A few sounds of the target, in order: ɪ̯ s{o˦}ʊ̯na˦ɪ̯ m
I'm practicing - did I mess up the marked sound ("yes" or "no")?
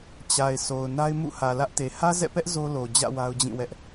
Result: yes